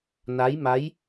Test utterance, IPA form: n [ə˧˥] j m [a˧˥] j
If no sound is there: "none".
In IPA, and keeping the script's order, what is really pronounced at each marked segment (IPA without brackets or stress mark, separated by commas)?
a˧˥, a˧˥